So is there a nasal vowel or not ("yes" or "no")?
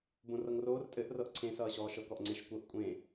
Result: yes